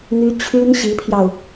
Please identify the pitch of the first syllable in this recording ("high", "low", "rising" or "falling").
high